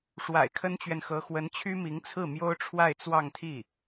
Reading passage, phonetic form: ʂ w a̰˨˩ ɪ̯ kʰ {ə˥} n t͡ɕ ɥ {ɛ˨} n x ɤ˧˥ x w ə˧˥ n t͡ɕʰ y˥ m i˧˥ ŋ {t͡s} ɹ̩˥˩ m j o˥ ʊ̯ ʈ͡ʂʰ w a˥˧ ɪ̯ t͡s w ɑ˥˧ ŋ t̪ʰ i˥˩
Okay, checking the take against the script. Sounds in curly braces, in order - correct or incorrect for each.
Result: correct, correct, incorrect: t͡sʰ

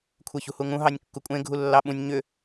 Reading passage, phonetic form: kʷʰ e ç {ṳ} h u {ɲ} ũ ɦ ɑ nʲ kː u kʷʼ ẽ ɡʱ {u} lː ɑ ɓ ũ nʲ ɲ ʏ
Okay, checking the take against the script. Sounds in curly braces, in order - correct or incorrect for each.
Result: correct, incorrect: ŋ, correct

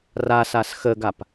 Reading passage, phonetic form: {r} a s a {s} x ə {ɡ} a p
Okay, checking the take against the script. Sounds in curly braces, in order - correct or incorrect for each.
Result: correct, correct, correct

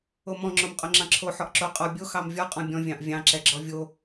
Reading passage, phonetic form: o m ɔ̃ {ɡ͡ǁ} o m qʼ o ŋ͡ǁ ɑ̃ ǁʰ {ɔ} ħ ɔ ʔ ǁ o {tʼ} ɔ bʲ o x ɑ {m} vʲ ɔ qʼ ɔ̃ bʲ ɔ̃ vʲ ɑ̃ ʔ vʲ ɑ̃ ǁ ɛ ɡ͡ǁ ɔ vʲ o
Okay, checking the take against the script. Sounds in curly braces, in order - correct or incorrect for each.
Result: incorrect: ŋ͡ǁ, incorrect: o, incorrect: qʼ, correct

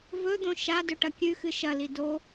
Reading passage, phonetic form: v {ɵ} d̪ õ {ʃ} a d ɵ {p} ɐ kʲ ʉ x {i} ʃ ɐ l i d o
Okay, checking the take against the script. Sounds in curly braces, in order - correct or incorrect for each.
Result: correct, correct, incorrect: ʈ, incorrect: ɨ

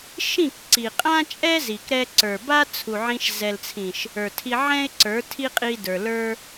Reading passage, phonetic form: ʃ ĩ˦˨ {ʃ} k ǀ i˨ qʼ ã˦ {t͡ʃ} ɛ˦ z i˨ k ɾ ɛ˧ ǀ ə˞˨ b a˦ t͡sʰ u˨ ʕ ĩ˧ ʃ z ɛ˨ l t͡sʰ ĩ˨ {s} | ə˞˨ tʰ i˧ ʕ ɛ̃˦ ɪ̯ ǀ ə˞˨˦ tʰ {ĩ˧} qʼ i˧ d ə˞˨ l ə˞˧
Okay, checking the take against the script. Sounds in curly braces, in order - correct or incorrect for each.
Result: incorrect: none, incorrect: t͡ʃʼ, incorrect: ʃ, incorrect: i˧

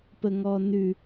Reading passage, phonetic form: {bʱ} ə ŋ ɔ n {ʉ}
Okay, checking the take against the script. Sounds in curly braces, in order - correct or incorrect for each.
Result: incorrect: p, correct

